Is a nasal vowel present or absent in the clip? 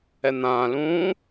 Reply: present